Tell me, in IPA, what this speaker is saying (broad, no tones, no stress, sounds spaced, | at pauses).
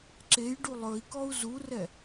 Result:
ǁ e j ɖ u lˠ ɵ i̯ k ɔ u̯ z u r ɛ